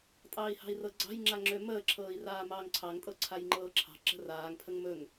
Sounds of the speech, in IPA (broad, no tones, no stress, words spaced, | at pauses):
tʼɑːi̯hɑ̤i̯rɤɡ͡ǀɑ̤j ŋ͡ǁaŋ͡ǁøməː ǁʰɤːi̯raːmɑːŋǀʰɑŋ tʼɤǀʰajŋ͡ǃɤːǁʰɑ̤ ǁə̤raːŋ pʰəŋmɵŋ